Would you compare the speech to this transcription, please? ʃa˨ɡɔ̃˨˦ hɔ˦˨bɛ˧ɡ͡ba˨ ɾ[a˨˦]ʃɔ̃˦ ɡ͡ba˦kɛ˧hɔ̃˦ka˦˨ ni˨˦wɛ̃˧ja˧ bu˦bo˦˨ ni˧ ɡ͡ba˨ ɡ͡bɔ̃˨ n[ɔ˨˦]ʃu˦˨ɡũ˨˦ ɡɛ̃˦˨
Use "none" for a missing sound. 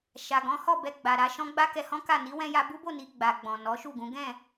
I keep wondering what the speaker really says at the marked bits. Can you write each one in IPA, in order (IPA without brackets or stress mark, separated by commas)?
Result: a˨˦, ɔ˨˦